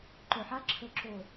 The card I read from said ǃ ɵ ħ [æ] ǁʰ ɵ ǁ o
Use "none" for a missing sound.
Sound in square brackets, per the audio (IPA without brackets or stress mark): a